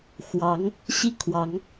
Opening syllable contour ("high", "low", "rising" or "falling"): rising